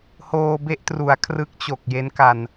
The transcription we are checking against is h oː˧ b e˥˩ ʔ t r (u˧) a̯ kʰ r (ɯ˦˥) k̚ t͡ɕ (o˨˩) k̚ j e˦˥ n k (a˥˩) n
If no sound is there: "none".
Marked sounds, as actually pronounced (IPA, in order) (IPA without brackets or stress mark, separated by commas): u˩˦, ɯ˦˥, o˨˩, a˧